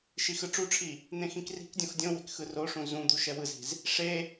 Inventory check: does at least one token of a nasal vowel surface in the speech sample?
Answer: yes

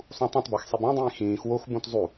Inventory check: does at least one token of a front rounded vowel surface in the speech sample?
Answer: no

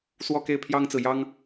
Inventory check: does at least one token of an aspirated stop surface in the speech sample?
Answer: yes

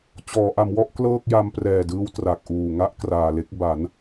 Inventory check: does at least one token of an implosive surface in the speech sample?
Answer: no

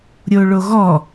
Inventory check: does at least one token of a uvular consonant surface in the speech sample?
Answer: no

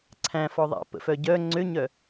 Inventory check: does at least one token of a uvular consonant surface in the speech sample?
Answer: no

